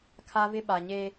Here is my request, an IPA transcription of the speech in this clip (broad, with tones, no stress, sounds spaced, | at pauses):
kʰ a˦ v ɪ˦ ɓ a˨ ɲ e˦